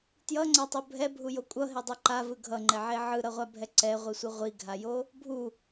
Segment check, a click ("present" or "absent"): present